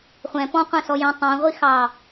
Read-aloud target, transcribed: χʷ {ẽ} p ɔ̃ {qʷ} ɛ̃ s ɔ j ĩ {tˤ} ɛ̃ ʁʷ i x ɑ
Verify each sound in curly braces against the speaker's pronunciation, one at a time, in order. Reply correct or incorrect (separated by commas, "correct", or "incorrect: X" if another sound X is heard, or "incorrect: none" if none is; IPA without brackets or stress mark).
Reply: incorrect: ɛ̃, correct, correct